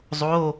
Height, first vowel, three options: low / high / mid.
mid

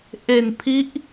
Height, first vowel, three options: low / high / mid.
mid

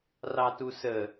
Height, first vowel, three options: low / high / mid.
low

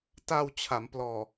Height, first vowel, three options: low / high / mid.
low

